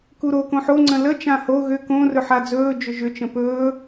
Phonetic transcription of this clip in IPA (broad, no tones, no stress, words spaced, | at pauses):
kuɾo kõħo ŋ͡ǀə̃lə t͡ʃãho ɣʏ kõ rɵħad͡zɵː d͡ʒʏʒʏ t͡ʃə̃pɵː